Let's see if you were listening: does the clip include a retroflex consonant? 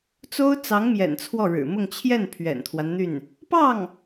yes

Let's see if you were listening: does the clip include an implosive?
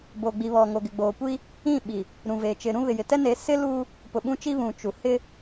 yes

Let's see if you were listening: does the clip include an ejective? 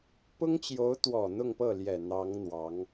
no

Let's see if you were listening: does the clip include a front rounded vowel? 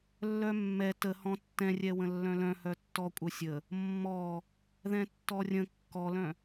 yes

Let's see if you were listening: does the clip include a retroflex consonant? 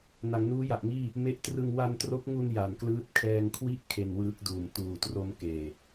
no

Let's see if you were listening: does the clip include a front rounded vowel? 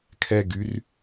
yes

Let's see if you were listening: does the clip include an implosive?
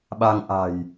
yes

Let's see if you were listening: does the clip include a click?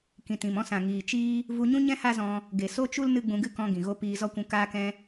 no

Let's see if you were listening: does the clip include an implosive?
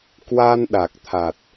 yes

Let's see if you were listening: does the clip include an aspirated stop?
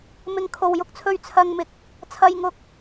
yes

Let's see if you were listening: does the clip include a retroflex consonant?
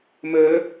no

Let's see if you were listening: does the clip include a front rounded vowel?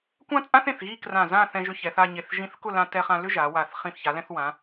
yes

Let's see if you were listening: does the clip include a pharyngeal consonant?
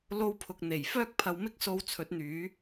no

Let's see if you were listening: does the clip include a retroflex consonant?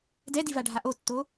yes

